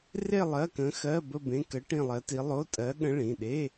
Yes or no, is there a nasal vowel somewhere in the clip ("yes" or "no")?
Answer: yes